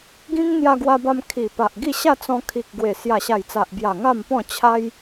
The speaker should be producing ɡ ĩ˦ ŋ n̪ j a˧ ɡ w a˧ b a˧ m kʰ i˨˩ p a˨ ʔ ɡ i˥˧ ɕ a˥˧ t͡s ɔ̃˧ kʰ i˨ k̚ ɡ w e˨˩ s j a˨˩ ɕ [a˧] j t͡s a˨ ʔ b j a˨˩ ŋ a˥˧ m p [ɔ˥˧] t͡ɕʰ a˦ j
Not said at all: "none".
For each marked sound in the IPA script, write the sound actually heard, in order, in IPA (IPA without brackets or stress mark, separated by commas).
a˨˩, ɔ̃˥˧